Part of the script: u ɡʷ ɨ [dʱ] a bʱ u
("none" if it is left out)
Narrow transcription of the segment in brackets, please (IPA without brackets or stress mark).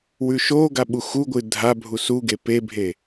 dʱ